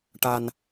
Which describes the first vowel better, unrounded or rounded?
unrounded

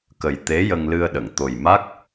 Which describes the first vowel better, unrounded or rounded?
unrounded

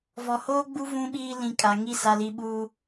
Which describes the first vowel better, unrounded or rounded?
rounded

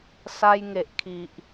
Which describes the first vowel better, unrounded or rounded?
unrounded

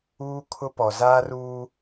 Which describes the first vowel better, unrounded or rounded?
rounded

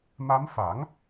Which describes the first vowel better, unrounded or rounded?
unrounded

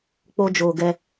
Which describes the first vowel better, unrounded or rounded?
rounded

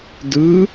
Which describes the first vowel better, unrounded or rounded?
unrounded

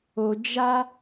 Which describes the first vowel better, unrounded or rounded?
rounded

